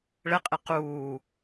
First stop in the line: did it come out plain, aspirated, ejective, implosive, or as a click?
ejective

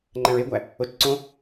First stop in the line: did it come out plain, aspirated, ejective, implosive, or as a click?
click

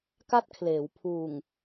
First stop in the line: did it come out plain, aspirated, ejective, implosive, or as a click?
plain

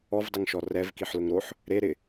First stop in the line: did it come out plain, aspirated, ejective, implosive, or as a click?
plain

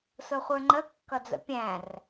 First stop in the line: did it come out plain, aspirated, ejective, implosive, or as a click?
click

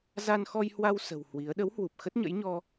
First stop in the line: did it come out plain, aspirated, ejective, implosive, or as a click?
implosive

